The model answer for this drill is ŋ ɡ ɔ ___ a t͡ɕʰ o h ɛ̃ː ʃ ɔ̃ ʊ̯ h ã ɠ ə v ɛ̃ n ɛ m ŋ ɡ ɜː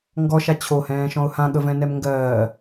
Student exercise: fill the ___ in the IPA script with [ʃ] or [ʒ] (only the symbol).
ʃ